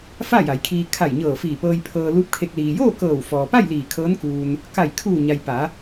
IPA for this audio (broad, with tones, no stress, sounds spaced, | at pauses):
f a˥˨ j a˩˧ j kʰ iː˧ kʰ a˧˩ j ɲ ɤː˧˩ f iː˧˩ p ɤː˧ j pʰ ɤː˧ l uː˧˥ p̚ kʰ e˧ k̚ l iː˩ j oː˥˨ k ɤː˧˩ w f ɔː˩ p a˥˨ j l iː˧˩ kʰ ɤː˧˥ n k uː˧ n | k a˧˩ j kʰ uː˧˩ ɲ a˩ j p a˩˧